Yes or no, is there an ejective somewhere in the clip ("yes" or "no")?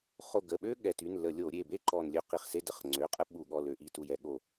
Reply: yes